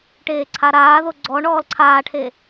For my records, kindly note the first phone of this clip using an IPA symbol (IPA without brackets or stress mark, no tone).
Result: ʈ